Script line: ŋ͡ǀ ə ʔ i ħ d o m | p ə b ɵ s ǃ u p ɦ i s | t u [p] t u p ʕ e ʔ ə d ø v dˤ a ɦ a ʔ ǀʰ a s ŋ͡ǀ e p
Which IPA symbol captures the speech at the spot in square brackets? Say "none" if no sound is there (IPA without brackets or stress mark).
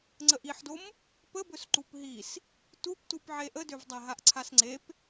p